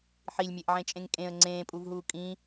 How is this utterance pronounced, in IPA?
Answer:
ħ i lʲ mʲ e ʔ ʕ ẽ t͡ʃʼ ẽ ŋ kʼ ẽ ə̯ ŋ͡ǀ ẽː pʼ u v ɦ uː kʼ ĩ

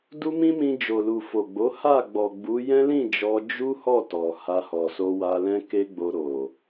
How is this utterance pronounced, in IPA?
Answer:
d u˦ m ĩ˦ m ĩ˧ d͡ʒ o˨ l u˨ f o˨ ɡ͡b o˨˦ h a˦˨ ɡ͡b ɔ˨ ɡ͡b u˨˦ j ɛ̃˦ l ĩ˦˨ d͡ʒ ɔ˧ d͡ʒ u˦ h ɔ˦˨ t ɔ˨ h a˧ h ɔ˨ s o˧ w a˧ l ɛ̃˦ k e˦ ɡ͡b o˧ ɾ o˨

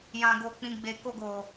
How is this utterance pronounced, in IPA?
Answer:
j ã˨ ɡ o˨ k͡p ĩ˨ ɡ͡b e˨ k o˧ ɡ o˨

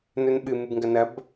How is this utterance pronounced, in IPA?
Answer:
n ɵ n ɓ ɨ m ɨ b ŋ ɡ ɐ n ɐ b

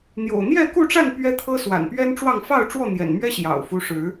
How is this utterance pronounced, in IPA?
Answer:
n̪ j o̰˨˩ ʊ̯ n̪ j ɛ˥˨ k u˥˨ ʈ͡ʂ a˥˨ n p ɥ ɛ˦ t̪ʰ ɤ˦ s w a̰˨˩ n p ɥ ɛ˦ n ʈ͡ʂ w ɑ˥˨ ŋ f ɑ˥˨ ʊ̯ ʈ͡ʂ w ɔ˥˨ n̪ j ɛ̰˨˩ n m ɥ ɛ˦ ɕ j ɑ̰˨˩ ʊ̯ f u˦ ʂ ɻ̩˨˦

